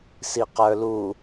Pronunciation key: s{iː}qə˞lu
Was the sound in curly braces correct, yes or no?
no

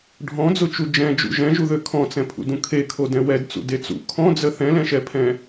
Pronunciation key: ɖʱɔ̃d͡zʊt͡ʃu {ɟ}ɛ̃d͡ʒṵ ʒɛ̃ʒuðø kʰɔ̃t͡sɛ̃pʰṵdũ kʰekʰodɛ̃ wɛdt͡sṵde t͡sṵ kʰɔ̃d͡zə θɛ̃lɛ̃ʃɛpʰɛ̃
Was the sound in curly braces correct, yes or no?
no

